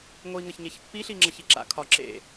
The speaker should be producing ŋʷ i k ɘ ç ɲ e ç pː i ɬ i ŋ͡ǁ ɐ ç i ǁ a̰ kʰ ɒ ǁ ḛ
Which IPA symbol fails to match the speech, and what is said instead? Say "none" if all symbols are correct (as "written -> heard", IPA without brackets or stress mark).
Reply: k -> ŋ